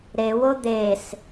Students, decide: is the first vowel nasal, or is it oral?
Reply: oral